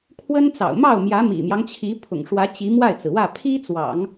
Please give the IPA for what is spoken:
kʰwə˥nt͡sɑ̰˨˩ʊ̯ mɑ˥˩ʊ̯mjä˧˥mḭ˨˩mjɑ˦ŋ t͡ɕʰi˧˥ pʰʊ̰˨˩ŋʂwä˧˥ t͡ɕi˧˥ mwa˥˩ɪ̯t͡sɹ̩˩wä˥˩ pʰi˥t͡swɑ̰˨˩˦ŋ

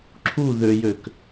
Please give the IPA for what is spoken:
ǁʰu ðøjøk

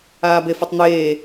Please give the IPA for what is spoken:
aːbefœtˤn̪eː

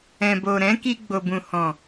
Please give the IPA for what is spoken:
ɛ̃˨bo˨ɾɛ̃˨˦ki˧ ɡ͡bo˨bũ˨hɔ̃˨

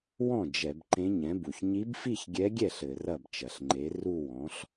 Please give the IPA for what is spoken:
wɔ̃˥˩ d͡ʒɛ˧˩˧b ǃẽ˧˥ɲɛ̃˩˥bu˩ç ɲi˧˥bfi˥˧çɡʲɛ˧˥ɡʲɛ˥˩ɬ ɘ˧˩˧rɐ˥˩bt͡ʃɐ˩ɬŋ͡ǃe˩˥ ru˥˧wɔ̃˩˥ɬ

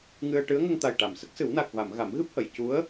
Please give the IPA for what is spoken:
ŋɨ˧ə̯ ʈɨ˧˥ə̯ŋə˧ŋ t̪a˨˩jʈa˨˩˨msə˦˥k̚sɨ˨˩˦w na˨˩k̚va˨˩˨m ɣa˨˩˦mɣɨ˦˥p̚hə˨˩˨j cu˧˥ə̯

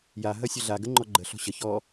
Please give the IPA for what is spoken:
ja ɦɐsʲəɮa ɡəŋ͡ǃɔɡ͡ǃə ɬɔ̤ɕə çɔ

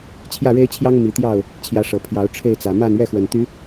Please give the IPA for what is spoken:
t͡ɕʰjä˥˨ɻe˦ɪ̯t͡ɕʰjɑ˦ŋ mi˨˦t̪jɑ˥˨ʊ̯ | t͡ɕʰjä˨˦ʂɤ˨˩ pʰjɑ˨˦ʊ̯ ʈ͡ʂʰe˥˨ɪ̯t͡sä˨˩ ma˥˨nɥɛ˥˨xwə˨˩nt̪y˨˦

